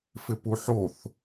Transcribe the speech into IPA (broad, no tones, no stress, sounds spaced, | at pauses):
f ɪ p u ħ o θ